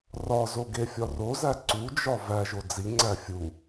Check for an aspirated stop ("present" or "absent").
absent